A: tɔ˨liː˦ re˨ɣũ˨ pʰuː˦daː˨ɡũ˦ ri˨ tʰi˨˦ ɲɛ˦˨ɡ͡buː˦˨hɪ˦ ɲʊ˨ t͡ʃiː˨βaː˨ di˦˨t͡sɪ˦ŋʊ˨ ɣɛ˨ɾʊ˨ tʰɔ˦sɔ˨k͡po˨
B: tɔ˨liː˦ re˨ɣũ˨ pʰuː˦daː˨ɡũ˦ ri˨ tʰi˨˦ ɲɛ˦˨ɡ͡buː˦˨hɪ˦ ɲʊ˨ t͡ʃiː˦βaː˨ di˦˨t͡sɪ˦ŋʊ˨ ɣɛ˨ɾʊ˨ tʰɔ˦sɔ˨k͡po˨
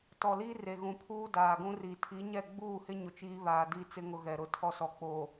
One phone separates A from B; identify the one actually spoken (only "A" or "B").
B